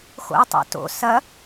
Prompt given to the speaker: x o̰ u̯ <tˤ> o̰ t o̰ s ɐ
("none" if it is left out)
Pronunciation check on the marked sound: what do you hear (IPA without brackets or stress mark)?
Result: tˤ